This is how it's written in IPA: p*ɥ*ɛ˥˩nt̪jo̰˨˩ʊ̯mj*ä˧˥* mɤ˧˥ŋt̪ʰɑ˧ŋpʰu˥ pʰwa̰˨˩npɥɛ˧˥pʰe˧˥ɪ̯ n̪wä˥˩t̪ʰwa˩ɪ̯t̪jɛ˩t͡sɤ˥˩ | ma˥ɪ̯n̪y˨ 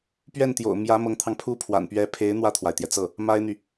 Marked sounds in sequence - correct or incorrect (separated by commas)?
correct, correct